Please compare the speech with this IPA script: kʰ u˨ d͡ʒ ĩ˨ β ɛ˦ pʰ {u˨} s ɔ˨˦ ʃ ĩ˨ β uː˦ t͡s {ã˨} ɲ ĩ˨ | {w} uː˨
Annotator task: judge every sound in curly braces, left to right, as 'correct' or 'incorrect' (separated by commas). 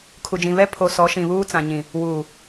incorrect, correct, correct